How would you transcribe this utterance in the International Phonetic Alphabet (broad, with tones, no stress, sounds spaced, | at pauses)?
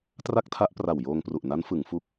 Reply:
t r a˥˩ k̚ tʰ a˦˥ ʔ p r a˨˩ w j oː˧ ŋ p r u˨˩ ʔ n a˦˥ n f ɯ˩˦ ŋ f u˦˥ k̚